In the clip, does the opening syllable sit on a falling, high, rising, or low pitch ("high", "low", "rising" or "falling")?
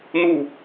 falling